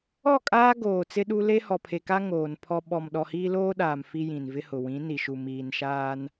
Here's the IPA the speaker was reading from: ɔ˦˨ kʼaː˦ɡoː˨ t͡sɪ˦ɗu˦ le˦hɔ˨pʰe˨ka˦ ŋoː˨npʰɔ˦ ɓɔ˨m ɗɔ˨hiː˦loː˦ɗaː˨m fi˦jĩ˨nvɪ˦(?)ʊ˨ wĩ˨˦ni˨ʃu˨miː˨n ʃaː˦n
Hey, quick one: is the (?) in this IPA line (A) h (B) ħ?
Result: A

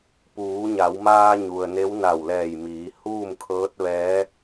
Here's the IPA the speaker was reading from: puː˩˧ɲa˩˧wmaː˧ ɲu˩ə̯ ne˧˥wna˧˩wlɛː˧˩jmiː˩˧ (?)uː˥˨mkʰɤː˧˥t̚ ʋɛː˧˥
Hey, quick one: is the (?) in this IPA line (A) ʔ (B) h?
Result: B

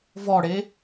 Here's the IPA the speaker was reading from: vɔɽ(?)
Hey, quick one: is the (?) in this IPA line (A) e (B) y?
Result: A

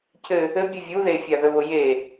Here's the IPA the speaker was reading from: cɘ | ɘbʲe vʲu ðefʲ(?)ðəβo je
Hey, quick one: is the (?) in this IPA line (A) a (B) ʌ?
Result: A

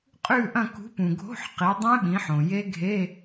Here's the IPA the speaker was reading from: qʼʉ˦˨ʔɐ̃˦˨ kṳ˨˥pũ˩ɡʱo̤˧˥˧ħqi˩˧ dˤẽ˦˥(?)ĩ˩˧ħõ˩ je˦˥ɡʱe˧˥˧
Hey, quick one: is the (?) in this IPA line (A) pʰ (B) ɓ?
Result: B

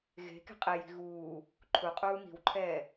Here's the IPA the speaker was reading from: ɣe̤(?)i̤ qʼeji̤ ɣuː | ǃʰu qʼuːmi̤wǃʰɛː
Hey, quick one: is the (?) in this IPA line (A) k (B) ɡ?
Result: A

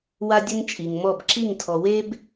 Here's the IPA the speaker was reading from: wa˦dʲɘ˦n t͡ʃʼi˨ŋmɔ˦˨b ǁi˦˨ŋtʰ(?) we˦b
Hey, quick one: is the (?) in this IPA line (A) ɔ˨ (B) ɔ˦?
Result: A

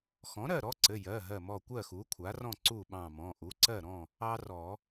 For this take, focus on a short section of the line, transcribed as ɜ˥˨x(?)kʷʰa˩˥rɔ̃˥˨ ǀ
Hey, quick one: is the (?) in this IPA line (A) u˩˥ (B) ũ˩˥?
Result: A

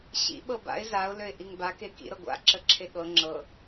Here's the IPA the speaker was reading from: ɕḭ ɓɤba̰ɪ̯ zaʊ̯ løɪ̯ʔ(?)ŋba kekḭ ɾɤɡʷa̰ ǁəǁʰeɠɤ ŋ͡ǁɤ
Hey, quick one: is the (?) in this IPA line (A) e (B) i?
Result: B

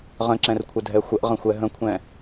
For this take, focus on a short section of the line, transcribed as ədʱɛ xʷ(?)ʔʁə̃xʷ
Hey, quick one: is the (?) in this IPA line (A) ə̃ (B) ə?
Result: B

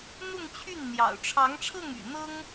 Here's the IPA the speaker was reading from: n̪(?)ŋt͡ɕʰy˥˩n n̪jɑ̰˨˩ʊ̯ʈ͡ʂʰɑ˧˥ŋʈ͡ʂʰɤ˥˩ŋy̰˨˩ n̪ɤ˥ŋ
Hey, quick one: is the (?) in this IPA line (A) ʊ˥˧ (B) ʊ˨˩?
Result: A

